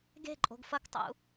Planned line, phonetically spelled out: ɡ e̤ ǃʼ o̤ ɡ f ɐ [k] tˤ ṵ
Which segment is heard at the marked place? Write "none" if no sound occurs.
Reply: k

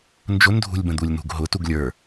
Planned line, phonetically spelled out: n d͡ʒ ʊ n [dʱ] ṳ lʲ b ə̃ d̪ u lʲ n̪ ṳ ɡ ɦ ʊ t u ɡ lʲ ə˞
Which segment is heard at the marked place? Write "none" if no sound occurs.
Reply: dʱ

